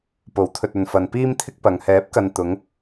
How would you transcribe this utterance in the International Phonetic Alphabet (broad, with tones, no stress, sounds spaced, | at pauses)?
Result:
p o˨˥ w t̪ʰ ɵ˨ t̚ ɵ˨ n f ɐ˨ n p iː˥ m t̪ʰ ɪ˥ k̚ p ɐ˨ ŋ h ɛː˨˥ p̚ k ɐ˨ n t̪ ʊ˨˧ ŋ